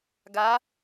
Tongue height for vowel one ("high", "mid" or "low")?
low